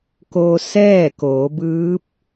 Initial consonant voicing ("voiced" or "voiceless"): voiceless